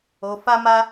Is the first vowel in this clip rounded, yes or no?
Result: yes